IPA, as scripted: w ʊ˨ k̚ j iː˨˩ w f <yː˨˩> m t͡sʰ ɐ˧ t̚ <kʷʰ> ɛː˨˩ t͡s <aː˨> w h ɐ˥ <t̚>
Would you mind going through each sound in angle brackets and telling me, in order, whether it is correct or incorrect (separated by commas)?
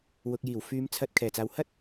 incorrect, incorrect, correct, correct